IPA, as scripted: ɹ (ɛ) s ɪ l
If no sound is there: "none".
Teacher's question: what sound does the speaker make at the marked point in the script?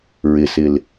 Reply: ɪ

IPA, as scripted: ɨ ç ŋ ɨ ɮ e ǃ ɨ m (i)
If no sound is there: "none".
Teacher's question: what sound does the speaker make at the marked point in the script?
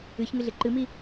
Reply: i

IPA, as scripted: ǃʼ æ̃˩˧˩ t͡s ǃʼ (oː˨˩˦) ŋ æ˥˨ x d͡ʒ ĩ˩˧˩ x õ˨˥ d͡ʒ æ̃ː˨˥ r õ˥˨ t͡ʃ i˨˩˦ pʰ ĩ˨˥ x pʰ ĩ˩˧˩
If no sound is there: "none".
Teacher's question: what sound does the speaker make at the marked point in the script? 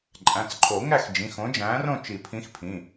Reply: o˨˩˦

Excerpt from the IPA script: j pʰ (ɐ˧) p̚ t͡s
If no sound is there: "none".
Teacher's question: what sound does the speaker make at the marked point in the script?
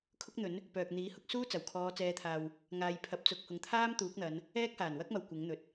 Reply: ɐ˨˥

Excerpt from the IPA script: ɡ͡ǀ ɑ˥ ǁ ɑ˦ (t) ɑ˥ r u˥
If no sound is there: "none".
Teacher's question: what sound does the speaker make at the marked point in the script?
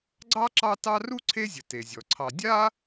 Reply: t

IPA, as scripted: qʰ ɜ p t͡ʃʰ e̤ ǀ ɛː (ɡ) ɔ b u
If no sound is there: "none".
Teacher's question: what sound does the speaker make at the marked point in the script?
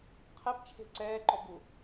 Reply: ǃ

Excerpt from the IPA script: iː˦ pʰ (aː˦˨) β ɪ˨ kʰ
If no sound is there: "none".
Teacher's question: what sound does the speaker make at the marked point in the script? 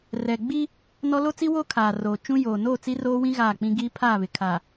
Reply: aː˦˨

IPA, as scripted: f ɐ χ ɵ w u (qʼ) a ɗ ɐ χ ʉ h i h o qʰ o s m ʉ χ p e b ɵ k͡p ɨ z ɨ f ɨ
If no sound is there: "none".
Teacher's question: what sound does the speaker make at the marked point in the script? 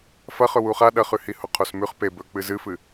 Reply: χ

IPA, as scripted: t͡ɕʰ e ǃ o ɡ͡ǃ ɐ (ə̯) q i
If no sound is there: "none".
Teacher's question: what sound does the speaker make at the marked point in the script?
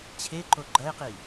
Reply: ɪ̯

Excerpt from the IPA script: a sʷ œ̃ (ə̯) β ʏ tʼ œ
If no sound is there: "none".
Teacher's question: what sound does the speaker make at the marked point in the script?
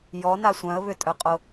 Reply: ə̯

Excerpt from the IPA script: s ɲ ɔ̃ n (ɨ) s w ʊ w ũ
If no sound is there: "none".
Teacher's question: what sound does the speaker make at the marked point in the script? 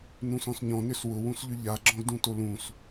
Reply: ʏ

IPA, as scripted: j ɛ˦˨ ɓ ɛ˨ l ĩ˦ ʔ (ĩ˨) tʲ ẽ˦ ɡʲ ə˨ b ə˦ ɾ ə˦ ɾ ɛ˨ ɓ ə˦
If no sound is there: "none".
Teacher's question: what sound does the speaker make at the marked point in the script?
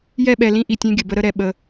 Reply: i˨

